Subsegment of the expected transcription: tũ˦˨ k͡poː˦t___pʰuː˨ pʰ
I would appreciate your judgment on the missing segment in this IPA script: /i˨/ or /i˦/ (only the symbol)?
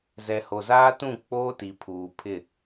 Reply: i˨